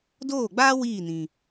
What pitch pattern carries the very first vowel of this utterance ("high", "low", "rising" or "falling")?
falling